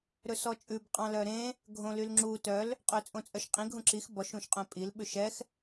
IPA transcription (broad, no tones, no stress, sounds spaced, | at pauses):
ɾ ɵ s ɔ t͡ʃʼ ʉ b qʼ ɑ̃ l œ ɾ ẽ | ɡʱ õ l y l ŋ͡ǁ u t œ l | qʼ ø t͡sʼ õ t͡sʼ œ ʃ qʼ ĩ ɡʱ ũ ǁ i x b ɔ ʃ ũ ʃ qʼ œ̃ pʼ i l ɓ ʉ ʃ ɛ x